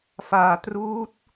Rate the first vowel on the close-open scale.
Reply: open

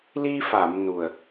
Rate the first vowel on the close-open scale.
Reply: close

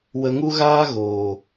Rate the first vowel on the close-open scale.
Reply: mid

